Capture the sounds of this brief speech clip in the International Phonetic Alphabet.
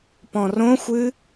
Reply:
p ɔ̃ r õ xʷ ɨ

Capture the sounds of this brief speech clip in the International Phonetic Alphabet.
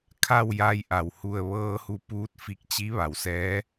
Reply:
kʰ a˥˨ w j a˧ j ʔ a˩ w h u˧˩ ə̯ ʋ ɤː˧ h u˧ p uː˧˥ t̚ f i˧ k̚ t͡ɕ i˧˥ ʋ a˩˧ w s ɛː˧˥

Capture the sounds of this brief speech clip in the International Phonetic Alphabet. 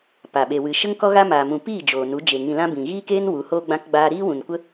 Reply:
p a˨ ɓ e˨ w ɨ˨ ʃ ə˦ ŋ k ɔ˦ ɣ a˦ m aː˨ m ũ˨ p iː˦˨ d͡ʒ oː˨ n u˨˦ d͡ʒ e˨ ŋ ĩ˨ l ã˧ b ĩ˨ ɣ iː˦ k eː˦ n w u˨˦ h oː˦ ɡ͡b ã˦ k ɡ͡b aː˦ ɾ iː˦ w ũ˨ n kʷ ə˦

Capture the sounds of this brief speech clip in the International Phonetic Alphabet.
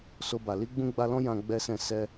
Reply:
s o˧ b a˨ l i˧ ɡ͡b ũ˧ ɡ͡b a˧ l ɔ̃˦ j ã˦ ɡ͡b ɛ˦ s ɛ̃˦˨ s ɛ˧

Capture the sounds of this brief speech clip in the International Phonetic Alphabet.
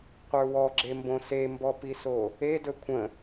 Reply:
qʷ ə˞ w ɔ ɡ͡ǁ e m b õ s e m b ɔ p i s o | e d ɵ kʷʰ ə̃

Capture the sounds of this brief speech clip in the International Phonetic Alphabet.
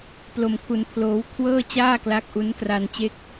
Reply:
p l o˧ m kʰ u˧ n pʰ l oː˦˥ w kʰ w ɤː˥˩ t͡ɕ aː˥˩ k l a˦˥ k̚ ʔ u˦˥ n k r a˧ n t͡ɕ e˥˩ k̚

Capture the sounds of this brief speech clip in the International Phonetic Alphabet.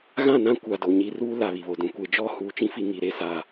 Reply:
ɣ ã˦˨ n ã˦ kʷ a˨ d o˨ ɲ i˨ r uː˦ l a˨ β i˨ β o˨ d ũ˨ kʷ e˨ d͡ʒ ɔ˦˨ h uː˨ t͡ʃ ĩ˦ f i˨ ŋ i˨ ɾ e˦˨ s a˨

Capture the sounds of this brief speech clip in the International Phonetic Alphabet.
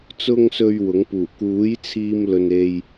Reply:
t͡s ʊ˧ ŋ s ɵ˨ ɥ w ʊ˨˥ ŋ p uː˨˩ k uː˨˥ j t͡sʰ iː˧ m l ɵ˨ n e˧ j

